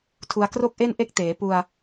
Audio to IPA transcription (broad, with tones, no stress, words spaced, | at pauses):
tʰu˧a̯kro˥˩k̚ʔe˥˩n ʔe˦˥k̚teː˩˦ pu˧a̯